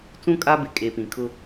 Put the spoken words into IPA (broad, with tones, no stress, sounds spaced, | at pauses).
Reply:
t͡s ũ˦ kʼ a˦ b ɪ˨ kʼ e˨ p ĩ˨ kʰ ʊ˦